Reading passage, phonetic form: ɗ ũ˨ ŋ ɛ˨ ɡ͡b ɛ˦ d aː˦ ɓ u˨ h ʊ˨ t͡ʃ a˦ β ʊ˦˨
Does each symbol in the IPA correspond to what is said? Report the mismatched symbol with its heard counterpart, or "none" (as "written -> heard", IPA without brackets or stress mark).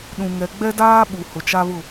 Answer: none